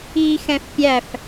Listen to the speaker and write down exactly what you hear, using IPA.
iː x ɛ̃ f pʲ æ f

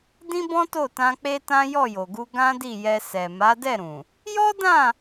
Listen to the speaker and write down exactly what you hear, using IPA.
d ĩ˦ b ɔ̃˦ t o˦˨ t ã˧ k͡p e˦ t ã˦ j ɔ˦˨ j o˨ ɡ u˧ ɡ ã˦ d i˦˨ j ɛ˧ s ɛ˨ m a˨˦ d ɛ˦˨ ɾ ũ˨ | j ɔ˦ d ã˦˨

